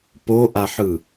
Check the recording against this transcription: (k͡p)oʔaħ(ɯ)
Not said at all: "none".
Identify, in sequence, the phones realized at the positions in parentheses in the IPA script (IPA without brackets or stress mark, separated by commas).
p, ɯ